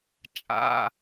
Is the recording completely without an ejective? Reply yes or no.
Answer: no